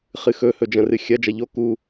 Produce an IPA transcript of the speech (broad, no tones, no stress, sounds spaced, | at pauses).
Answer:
χ ɨ x ɵ h ɵ d͡ʒ ɐ̃ r ɨ xʲ ɐ d͡ʒ ɐ ʎ o k u